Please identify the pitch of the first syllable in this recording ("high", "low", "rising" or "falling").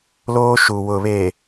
high